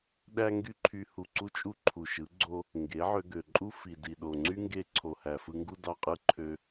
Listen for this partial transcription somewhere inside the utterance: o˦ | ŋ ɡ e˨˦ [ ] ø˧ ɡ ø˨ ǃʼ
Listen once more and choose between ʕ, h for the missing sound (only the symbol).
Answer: ʕ